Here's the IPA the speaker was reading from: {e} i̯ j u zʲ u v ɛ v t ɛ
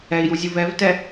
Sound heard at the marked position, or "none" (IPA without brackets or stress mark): ɛ